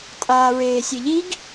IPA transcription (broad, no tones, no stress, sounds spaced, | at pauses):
tʼ aː ɹ eː sʲ e ʎ i ɡ